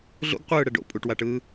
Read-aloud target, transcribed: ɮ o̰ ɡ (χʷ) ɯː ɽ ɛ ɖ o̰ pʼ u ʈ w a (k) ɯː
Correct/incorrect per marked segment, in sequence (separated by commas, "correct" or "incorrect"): incorrect, incorrect